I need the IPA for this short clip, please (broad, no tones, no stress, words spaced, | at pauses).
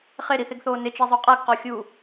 χeɾiθeɡθoː nɪt͡ʃezˤo qʼaɡqɔxʲuː